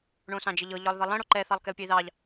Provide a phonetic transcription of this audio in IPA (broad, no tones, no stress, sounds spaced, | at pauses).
ɳ õ s ɑ̃ d͡ʒ ə ʎ ɤ ʎ ɒ lˠ ð ʌ lˠ ə̃ ɽ o ǃ ɛ θ ɑ lˠ k ɛ u̯ pʲ ə i̯ ð ɑ ʎ